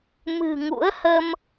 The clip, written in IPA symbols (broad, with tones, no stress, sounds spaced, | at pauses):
m ɨ̤˨˩ ŋ ṵ˧˥ ə̯ h ə˧ m